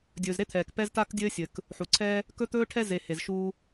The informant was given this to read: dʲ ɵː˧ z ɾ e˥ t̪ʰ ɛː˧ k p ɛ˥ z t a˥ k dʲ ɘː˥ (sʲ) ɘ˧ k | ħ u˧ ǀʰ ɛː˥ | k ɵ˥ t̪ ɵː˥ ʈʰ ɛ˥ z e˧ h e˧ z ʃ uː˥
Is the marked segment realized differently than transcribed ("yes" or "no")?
no